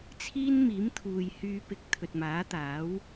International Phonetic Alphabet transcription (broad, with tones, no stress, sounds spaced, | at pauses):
t͡sʰ iː˥ n m iː˨˥ m t̪ʰ uː˨ j h yː˧ p ɪ˨˥ k̚ t̪ʰ ɵ˨ t̚ m aː˨˥ t̪ aː˨˥ w